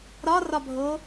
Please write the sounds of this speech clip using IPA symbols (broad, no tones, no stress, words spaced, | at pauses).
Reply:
ɾɒrɒbʱo